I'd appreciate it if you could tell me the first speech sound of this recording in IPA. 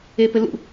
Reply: e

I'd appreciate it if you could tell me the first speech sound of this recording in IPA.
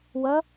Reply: w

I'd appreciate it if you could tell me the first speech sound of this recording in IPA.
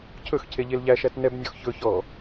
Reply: cʰ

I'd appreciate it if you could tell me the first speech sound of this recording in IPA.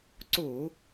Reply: ǀ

